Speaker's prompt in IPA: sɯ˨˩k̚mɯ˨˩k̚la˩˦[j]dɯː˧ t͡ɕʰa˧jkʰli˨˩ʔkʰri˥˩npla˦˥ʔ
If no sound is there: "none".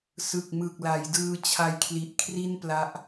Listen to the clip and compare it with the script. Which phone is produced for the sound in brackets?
j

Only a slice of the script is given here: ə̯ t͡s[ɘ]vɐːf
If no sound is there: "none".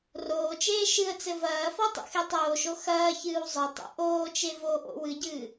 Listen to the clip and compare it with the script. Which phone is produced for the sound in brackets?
ɘ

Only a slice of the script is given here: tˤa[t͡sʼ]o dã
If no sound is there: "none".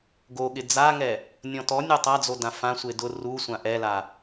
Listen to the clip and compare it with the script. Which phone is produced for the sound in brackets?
d͡z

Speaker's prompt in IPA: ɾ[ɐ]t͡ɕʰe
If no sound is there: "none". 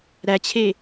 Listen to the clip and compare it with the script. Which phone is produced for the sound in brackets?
æ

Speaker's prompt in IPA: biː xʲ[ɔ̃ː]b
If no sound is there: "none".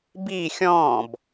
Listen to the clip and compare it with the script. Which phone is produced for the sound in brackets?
ɔ̃ː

